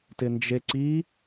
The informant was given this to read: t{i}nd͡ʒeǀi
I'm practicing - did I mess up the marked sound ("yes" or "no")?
yes